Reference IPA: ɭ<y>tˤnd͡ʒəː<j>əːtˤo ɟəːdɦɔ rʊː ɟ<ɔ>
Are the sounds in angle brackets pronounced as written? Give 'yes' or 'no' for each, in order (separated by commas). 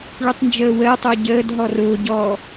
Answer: yes, no, yes